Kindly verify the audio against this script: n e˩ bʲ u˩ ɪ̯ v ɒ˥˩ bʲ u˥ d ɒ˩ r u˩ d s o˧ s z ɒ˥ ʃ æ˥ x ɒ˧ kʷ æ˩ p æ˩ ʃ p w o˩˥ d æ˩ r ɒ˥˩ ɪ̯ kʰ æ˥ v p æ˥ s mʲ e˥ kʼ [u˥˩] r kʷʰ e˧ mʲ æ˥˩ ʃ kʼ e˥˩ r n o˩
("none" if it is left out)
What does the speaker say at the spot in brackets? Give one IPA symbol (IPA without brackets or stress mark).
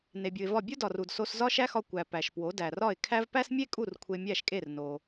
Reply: u˥˩